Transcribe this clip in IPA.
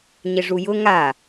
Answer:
ɲ ɪ ʐ u j ʊ ŋ a

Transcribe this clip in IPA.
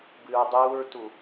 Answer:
b ɨ ɹ dˤ uː ɹ t u

